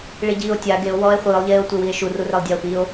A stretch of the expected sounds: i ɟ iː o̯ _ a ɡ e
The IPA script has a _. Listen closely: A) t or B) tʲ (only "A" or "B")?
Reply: B